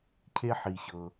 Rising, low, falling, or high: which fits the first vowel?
high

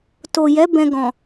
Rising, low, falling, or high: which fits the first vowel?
low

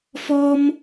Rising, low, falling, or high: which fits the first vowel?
high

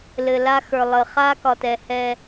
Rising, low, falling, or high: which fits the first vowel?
low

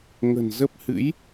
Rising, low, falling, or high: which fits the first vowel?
low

